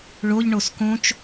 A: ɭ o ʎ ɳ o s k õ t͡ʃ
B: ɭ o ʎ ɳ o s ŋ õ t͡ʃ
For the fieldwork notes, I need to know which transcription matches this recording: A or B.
A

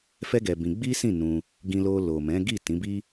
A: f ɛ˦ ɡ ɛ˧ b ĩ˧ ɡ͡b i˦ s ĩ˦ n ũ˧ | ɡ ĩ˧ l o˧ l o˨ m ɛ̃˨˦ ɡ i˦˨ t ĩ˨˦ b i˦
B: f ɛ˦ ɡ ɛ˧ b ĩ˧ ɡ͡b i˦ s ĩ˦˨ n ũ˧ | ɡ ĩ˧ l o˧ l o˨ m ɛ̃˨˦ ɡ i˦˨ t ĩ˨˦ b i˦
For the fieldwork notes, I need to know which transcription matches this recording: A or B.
B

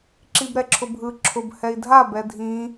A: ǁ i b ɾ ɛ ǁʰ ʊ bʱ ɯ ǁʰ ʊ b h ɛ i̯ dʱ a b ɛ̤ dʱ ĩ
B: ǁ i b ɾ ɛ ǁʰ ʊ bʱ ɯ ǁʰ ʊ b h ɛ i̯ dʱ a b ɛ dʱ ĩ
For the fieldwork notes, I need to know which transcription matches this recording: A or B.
B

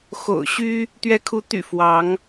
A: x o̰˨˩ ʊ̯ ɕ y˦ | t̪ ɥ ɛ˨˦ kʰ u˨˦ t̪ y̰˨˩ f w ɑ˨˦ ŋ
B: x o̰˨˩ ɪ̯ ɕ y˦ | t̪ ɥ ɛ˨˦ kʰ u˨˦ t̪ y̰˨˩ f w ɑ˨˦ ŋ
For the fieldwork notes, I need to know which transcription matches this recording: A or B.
A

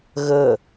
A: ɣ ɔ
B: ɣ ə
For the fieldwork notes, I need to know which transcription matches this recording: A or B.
B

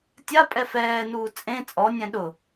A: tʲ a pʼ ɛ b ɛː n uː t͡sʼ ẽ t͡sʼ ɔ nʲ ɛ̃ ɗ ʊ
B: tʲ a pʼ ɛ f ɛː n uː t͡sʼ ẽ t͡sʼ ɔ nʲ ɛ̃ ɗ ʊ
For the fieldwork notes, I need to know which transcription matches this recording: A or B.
B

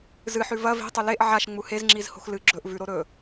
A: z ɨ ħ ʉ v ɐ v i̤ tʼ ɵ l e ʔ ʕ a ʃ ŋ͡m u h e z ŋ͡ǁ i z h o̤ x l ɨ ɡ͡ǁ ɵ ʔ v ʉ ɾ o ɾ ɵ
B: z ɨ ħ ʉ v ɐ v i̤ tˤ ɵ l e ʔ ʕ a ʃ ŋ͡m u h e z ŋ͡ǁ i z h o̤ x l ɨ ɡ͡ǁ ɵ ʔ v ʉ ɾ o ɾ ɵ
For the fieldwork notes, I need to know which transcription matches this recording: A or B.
B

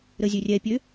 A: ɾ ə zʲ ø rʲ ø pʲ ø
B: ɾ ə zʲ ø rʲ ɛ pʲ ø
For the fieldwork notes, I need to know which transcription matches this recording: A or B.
B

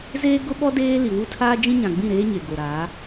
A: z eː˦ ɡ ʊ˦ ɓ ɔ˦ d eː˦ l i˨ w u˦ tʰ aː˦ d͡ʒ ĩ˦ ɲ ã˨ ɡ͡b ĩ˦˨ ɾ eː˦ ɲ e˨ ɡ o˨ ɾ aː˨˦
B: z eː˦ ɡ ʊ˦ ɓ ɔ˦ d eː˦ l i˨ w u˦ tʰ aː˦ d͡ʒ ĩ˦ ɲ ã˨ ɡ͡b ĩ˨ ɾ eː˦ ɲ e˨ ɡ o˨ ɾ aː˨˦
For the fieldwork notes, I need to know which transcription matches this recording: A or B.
A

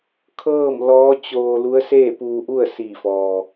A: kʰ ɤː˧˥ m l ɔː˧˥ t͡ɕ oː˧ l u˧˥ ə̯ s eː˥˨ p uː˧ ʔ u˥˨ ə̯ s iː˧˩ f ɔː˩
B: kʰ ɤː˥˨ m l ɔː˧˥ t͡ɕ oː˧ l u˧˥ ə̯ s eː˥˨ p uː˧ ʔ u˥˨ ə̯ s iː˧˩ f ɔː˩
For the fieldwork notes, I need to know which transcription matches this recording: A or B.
B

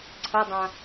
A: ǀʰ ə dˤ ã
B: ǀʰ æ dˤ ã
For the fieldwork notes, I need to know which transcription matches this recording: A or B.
A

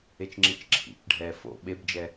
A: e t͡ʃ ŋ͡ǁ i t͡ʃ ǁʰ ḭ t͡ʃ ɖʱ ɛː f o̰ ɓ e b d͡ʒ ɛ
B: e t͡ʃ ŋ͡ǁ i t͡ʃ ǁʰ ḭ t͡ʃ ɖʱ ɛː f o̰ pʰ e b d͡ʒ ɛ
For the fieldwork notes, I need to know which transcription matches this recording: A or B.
A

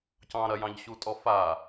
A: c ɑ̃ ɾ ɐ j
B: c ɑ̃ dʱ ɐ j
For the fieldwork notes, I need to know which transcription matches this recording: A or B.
A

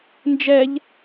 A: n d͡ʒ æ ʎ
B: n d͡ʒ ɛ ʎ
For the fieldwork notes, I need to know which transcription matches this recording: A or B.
B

